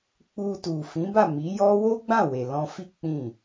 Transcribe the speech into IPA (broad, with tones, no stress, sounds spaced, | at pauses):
k͡p u˧ t u˨ f ĩ˨˦ b a˦˨ m i˨˦ j ɔ˦ w o˦ ɡ͡b ã˦˨ w e˨ l ɔ̃˧ f i˦ k͡p ĩ˦˨